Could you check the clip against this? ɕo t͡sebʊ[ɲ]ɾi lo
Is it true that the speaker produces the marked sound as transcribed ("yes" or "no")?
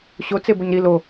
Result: yes